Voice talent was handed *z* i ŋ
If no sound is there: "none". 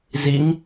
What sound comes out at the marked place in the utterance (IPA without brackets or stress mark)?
z